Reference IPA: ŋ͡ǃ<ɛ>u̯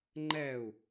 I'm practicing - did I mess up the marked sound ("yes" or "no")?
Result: no